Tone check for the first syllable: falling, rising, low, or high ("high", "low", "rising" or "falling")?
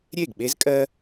falling